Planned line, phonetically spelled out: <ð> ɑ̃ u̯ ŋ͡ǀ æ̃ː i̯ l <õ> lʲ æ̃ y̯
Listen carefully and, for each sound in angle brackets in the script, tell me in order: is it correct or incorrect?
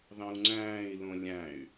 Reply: correct, correct

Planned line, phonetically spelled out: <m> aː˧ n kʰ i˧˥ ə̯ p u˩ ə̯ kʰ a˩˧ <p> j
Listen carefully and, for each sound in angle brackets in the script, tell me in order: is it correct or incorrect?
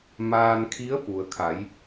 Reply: correct, incorrect: none

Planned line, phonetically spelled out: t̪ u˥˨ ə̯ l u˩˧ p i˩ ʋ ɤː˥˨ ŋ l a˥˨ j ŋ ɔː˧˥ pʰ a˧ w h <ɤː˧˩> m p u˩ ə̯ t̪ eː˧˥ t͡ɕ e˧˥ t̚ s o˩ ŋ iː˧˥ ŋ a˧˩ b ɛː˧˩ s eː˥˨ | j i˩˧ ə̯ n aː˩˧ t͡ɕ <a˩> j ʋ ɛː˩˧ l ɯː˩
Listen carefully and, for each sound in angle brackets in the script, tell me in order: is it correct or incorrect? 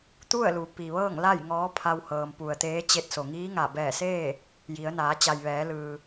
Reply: incorrect: ɤː˩, correct

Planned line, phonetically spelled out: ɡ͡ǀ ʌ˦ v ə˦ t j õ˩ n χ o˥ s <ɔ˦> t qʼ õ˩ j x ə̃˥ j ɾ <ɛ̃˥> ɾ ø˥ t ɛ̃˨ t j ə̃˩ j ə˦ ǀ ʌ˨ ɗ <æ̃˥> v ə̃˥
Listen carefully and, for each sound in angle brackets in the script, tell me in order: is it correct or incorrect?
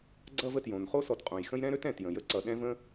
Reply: incorrect: ɔ˨, correct, incorrect: ɛ̃˥

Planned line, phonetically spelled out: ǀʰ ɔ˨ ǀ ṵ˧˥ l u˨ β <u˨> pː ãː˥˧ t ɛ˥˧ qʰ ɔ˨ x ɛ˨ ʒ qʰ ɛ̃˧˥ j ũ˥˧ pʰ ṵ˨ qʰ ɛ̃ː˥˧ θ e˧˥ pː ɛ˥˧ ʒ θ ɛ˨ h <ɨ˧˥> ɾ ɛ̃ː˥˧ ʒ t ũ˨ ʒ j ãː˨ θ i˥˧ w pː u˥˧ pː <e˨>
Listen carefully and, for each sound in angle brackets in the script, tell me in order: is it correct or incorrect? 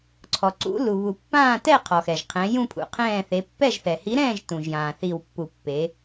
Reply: correct, incorrect: i˧˥, incorrect: e˧˥

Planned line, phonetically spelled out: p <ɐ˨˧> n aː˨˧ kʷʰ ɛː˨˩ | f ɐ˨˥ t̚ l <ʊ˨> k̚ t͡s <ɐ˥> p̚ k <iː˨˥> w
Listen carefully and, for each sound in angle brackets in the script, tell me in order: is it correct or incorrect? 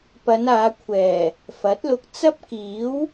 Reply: correct, incorrect: ʊ˧, correct, correct

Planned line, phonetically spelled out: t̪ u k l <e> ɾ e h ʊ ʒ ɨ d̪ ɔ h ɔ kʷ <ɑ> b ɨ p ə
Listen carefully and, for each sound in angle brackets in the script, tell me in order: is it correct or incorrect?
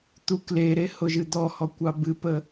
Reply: correct, correct

